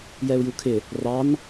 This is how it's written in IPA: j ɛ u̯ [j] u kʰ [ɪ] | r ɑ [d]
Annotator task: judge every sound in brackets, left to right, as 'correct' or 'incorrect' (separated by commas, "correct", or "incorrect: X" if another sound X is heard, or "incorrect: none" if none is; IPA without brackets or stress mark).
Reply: correct, correct, incorrect: n